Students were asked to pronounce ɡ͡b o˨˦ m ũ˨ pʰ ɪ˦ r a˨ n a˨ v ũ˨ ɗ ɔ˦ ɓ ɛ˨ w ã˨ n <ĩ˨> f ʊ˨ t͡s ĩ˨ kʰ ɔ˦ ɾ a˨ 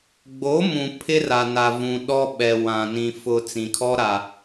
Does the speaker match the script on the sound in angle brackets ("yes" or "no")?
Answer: yes